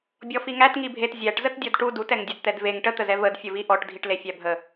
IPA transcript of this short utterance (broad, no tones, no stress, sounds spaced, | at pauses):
bʲ ɔ f i ŋ æ t ŋ i bʱ e t zʲ æ ʈ z ə t dʲ ɔ d ʈ u d u t ɛ ŋ dʲ ə d t̪ ɛ d v e ŋ ʈ ə t̪ ə z ɛ v ə d fʲ ə v i ʔ ɔ ʈ dʱ i ʈ l e fʲ æ bʱ ə